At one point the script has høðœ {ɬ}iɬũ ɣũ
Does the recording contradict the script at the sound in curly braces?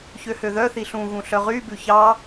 yes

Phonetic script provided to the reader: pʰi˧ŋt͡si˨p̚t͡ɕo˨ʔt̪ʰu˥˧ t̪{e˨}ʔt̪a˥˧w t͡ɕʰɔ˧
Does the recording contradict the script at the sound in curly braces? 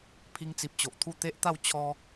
yes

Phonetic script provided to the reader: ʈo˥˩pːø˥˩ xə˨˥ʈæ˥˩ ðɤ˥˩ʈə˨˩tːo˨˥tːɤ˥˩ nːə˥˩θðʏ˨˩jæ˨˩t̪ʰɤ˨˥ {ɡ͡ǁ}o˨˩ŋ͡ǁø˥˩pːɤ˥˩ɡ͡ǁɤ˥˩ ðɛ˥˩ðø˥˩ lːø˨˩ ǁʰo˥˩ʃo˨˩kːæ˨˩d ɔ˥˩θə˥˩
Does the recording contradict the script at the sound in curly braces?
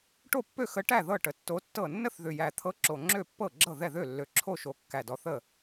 yes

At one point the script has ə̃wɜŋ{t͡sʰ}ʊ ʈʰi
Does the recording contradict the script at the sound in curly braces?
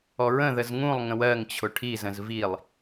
yes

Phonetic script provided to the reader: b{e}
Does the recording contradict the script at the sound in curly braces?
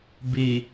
no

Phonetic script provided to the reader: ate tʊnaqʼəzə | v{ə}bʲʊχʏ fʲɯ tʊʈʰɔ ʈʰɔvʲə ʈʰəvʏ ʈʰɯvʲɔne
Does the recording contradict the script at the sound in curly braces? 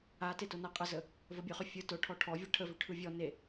no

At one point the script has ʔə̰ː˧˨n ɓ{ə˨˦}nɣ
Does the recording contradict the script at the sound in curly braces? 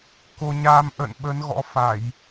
no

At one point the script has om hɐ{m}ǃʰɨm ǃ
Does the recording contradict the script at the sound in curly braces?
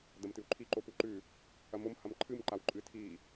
no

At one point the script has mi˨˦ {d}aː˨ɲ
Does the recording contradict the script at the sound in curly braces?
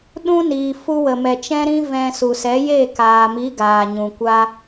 yes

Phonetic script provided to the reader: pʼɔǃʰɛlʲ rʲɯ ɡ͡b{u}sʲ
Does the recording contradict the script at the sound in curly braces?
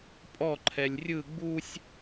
no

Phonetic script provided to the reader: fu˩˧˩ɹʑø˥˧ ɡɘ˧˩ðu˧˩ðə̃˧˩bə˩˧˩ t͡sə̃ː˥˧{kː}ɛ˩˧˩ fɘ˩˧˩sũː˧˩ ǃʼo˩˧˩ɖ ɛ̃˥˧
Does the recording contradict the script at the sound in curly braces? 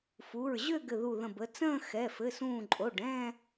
yes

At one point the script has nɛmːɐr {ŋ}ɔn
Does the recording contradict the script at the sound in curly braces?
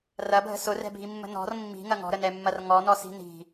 no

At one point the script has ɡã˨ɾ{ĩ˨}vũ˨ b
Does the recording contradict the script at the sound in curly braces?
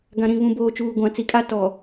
no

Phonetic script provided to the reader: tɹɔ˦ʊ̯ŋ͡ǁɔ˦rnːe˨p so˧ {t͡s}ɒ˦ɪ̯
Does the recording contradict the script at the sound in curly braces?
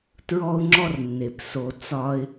no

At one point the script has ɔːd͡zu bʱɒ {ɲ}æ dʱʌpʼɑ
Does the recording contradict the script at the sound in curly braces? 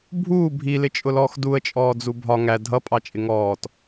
yes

